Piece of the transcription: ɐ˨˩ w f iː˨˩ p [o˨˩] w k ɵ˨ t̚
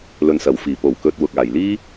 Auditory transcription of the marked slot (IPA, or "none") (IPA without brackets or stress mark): o˨˩